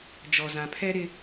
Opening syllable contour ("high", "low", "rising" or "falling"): low